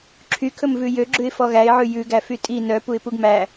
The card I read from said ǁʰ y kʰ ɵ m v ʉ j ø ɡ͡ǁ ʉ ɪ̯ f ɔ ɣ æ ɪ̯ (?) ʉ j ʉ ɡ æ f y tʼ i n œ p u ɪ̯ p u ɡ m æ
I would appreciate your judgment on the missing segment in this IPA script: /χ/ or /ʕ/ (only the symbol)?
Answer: ʕ